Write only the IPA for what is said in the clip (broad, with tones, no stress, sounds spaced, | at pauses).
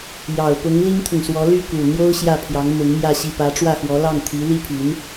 j ɑ˨˩ ʊ̯ p ʊ˧˥ ŋ l i˥ ŋ t̪ʰ ʊ˨ ŋ s w ɔ˧˥ l y˥˩ k u˨˩ n̪ j o˥ ʊ̯ ɕ j ä˥˩ pʰ j ɑ˧˥ ŋ m ʊ˧˥ ŋ m j ä˥˧ ɕ i˥˩ p ä˧˥ ʈ͡ʂ w ä˥˩ x w ɔ˧˥ l ɑ˥˩ ŋ t̪ʰ i˧˥ l i˥ pʰ y˧˥ n